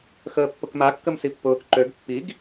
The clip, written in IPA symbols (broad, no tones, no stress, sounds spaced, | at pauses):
x əː pː ʊ k m a kː ə m s i pː ʊː k ǃ ø ɡ pː i ɡ